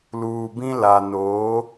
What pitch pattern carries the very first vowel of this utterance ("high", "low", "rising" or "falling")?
low